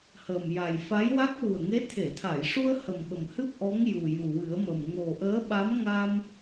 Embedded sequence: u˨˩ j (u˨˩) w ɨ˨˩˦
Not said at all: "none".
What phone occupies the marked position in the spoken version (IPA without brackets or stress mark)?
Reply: u˨˩